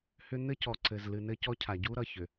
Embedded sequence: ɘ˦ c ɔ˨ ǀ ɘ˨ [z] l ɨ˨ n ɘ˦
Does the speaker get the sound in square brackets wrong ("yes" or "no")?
no